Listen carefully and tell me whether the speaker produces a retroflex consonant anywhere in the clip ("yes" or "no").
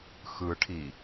yes